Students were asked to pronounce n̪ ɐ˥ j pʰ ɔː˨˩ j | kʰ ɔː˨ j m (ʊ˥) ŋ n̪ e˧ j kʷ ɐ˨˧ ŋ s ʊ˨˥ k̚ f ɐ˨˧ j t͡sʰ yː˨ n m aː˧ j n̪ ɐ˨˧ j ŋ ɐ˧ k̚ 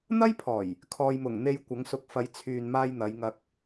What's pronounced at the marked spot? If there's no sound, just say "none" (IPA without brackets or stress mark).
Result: ʊ˨˩